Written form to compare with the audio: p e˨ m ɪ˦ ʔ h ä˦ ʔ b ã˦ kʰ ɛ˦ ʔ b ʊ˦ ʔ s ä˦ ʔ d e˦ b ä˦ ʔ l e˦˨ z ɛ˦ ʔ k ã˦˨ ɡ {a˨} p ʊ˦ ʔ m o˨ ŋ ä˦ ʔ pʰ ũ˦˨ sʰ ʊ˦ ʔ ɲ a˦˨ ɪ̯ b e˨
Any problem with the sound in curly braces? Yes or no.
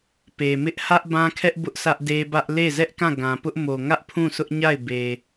yes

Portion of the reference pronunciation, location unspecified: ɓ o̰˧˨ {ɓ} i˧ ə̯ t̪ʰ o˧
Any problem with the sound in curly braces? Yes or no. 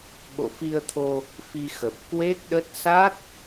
yes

